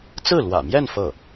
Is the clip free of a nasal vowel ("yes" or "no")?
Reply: yes